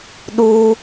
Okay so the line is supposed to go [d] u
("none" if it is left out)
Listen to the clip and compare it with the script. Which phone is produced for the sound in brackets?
ɗ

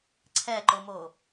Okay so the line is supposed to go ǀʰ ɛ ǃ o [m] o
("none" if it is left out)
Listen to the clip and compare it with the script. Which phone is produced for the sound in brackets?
m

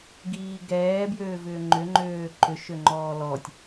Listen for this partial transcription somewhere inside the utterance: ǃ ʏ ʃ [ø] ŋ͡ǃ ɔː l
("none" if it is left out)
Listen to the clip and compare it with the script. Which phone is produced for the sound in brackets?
ø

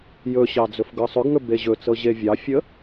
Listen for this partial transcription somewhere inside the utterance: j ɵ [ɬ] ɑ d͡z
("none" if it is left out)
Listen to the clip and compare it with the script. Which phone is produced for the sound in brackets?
ɕ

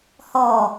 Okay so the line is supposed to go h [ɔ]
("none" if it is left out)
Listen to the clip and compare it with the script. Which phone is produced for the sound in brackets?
ɔ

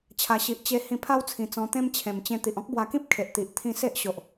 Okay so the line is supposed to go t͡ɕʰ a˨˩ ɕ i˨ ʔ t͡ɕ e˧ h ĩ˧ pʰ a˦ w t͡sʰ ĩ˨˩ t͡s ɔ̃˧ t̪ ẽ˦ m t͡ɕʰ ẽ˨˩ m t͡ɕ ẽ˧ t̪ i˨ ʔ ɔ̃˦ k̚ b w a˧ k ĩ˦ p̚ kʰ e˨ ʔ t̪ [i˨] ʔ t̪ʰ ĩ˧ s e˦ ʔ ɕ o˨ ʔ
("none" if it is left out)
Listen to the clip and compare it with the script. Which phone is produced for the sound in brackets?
i˨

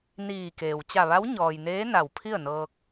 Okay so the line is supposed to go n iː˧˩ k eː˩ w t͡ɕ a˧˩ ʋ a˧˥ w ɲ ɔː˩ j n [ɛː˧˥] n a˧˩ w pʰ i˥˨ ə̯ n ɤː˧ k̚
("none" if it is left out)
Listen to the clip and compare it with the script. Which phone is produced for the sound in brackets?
eː˧˥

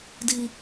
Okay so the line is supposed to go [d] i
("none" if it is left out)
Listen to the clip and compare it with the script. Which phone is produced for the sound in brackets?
d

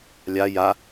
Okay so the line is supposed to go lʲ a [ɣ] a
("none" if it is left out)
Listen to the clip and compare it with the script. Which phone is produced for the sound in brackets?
j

